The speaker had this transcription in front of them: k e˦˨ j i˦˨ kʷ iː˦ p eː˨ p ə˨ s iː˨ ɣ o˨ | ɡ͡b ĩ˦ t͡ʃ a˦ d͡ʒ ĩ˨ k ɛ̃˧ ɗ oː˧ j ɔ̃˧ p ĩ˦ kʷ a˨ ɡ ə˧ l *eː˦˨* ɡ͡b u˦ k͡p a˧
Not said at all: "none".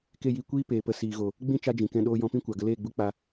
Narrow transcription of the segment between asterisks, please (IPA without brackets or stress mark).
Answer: eː˦˨